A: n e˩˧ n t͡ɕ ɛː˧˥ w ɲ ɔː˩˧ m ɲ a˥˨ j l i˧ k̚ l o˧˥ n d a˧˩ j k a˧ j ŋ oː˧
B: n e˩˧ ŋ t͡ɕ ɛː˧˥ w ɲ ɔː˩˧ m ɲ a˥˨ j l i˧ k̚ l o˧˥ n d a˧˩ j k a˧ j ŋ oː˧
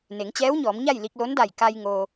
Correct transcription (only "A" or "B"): B